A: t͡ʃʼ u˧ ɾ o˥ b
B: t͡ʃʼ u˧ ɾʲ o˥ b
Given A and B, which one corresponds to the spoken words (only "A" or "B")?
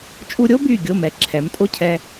B